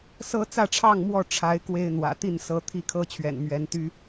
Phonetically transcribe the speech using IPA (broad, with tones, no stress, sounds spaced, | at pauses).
s ɤ˦ t͡s ä˥˨ ʈ͡ʂʰ ɑ˥˨ ŋ m w ɔ˥˨ ʈ͡ʂʰ a˨˦ ɪ̯ k w e˦ ɪ̯ n̪ w ä̰˨˩ t̪ i˥˨ n s ɤ˨˦ t̪ʰ i˦ kʰ ɤ˦ t͡ɕʰ ɥ ɛ̰˨˩ n m ɥ ɛ˨˦ n t̪ y˦